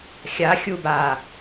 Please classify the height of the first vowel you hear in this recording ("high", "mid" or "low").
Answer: low